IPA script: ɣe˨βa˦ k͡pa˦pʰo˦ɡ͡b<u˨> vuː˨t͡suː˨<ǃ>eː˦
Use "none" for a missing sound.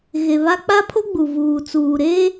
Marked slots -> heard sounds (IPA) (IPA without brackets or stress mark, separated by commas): u˨, ɾ